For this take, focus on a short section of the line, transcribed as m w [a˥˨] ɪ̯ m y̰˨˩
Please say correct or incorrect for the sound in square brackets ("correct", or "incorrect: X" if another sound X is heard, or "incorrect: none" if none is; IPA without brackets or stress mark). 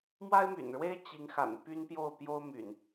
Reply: incorrect: a˦